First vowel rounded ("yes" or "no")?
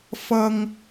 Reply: no